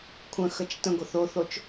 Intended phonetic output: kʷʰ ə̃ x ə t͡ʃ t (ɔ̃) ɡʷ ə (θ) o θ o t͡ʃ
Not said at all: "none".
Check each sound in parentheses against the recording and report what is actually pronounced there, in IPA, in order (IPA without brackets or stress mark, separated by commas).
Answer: ə̃, θ